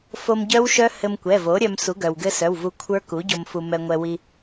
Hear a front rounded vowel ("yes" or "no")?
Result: yes